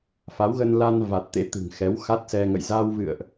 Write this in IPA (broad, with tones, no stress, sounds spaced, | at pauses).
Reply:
f a˨˦ w ɣ ə˧ n l a˧ n v a˨˩ t̚ t̪ ḛ˧˥ t̪ ɨ̤˨˩ ŋ x ɛ˨˦ w x a˦˥ t̚ s ɛ˧ ŋ ə̰˧˨ j z a˧ w v ɨ̰˧˨ ə̯ ʔ